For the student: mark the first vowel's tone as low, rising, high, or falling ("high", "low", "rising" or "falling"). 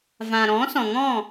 low